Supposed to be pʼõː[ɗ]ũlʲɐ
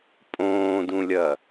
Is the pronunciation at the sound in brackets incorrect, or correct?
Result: incorrect